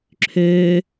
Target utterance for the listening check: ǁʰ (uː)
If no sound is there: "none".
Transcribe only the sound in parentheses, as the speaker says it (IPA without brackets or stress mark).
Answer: øː